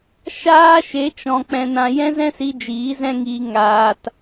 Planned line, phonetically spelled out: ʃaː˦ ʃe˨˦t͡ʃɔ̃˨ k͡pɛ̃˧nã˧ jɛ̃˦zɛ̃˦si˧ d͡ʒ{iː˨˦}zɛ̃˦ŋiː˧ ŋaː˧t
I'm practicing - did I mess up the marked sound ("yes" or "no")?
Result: no